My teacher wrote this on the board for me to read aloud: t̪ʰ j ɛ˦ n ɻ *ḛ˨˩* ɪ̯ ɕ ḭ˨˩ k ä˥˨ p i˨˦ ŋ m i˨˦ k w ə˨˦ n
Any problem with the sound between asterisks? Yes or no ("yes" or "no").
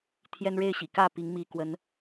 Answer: yes